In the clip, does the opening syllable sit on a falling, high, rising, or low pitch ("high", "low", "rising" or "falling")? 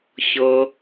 low